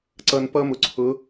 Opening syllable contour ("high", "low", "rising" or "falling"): low